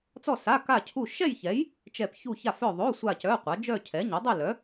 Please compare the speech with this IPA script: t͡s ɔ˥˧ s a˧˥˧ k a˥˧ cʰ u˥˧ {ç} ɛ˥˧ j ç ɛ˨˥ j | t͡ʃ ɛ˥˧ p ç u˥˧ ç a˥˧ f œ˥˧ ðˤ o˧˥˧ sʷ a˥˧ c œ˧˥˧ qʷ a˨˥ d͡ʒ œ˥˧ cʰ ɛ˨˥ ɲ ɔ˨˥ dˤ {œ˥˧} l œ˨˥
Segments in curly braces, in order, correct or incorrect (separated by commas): incorrect, correct